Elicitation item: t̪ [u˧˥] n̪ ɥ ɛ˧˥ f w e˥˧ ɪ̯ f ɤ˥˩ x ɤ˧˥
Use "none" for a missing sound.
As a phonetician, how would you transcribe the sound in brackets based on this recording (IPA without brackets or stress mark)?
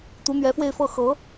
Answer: u˧˥